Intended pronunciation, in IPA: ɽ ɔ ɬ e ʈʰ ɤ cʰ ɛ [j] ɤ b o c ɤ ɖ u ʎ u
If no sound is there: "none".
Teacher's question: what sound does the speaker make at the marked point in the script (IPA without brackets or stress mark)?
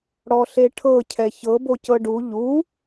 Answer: ç